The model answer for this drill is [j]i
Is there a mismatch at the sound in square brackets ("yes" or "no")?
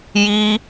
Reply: no